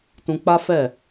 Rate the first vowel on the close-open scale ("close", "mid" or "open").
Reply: close